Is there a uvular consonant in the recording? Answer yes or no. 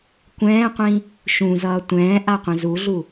yes